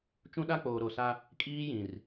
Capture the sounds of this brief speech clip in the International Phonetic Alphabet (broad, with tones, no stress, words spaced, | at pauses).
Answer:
t͡ʃũ˦ɗa˦k͡poː˨ ɾo˨sa˦ | kʼiː˦jĩ˨r